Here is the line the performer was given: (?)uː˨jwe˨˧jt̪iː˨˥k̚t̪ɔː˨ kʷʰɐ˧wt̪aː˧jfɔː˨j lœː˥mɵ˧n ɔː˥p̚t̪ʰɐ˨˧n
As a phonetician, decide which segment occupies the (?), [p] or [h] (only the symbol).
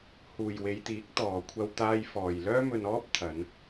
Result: h